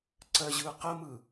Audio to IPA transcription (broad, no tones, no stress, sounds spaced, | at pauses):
ǀ ɜ ʑ ɯ q ə m ɯ